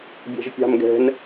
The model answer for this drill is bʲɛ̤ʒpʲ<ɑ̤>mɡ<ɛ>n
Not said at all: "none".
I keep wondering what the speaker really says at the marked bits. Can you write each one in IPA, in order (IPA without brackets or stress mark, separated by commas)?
ɑ̤, ɛ̤